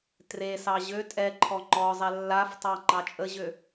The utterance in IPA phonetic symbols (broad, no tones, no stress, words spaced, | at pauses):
tresɑ ʑø tʼɛǃʰɔ ŋ͡ǃɔzˤɛ lːaftˤɑ ŋ͡ǃɑt͡ʃʼəʑø